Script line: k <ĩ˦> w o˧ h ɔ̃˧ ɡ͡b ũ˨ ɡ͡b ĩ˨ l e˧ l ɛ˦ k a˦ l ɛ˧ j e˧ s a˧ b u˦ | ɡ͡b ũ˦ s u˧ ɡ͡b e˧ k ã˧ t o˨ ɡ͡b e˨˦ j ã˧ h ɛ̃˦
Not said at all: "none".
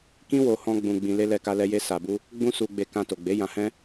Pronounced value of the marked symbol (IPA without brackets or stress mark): ĩ˦